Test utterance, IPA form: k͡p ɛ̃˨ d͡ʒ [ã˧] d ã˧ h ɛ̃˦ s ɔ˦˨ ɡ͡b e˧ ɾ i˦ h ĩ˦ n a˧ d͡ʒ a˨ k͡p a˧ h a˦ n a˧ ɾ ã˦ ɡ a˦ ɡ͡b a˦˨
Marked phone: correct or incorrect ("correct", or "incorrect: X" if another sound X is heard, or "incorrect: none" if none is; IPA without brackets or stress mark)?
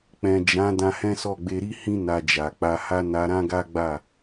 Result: incorrect: ã˨˦